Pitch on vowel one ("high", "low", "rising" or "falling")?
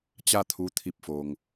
falling